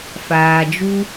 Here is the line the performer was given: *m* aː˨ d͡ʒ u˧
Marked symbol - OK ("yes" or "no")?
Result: no